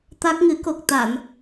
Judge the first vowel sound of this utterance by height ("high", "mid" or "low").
low